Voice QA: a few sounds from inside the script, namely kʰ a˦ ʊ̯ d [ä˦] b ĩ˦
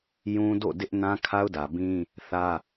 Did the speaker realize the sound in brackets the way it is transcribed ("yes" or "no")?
no